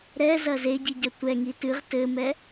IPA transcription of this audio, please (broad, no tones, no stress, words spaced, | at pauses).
ɾɛ zɐze ɟiɟɐtʷɛ ŋitɨʁ tɘmɛ